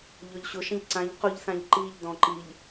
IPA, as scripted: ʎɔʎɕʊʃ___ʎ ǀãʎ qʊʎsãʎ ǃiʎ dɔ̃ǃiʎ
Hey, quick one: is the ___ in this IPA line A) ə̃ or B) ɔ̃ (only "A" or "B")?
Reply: A